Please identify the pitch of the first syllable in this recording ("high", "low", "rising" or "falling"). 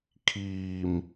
low